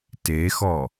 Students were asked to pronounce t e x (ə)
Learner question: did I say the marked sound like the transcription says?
no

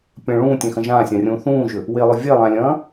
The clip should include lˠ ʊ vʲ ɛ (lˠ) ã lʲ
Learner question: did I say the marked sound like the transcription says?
yes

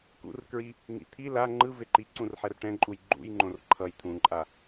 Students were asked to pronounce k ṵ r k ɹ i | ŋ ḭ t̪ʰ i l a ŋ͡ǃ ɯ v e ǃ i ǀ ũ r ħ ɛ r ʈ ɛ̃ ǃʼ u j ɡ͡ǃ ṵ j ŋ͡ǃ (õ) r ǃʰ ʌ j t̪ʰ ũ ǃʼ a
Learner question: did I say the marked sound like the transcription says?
yes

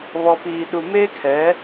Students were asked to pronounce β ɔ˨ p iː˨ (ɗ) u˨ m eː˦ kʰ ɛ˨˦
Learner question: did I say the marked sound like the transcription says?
yes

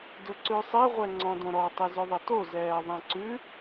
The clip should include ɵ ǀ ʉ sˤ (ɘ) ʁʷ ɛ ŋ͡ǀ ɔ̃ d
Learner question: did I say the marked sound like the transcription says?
no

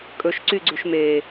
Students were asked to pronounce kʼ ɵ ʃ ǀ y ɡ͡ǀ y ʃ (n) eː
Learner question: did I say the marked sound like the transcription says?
no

